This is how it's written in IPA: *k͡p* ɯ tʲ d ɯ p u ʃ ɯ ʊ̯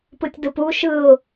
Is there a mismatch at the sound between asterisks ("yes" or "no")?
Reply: yes